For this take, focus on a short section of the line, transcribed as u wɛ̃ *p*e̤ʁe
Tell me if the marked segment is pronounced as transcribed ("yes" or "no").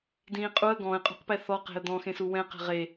no